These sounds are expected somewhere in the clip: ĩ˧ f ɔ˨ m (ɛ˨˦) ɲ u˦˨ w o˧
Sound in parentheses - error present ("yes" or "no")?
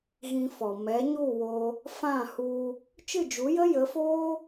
no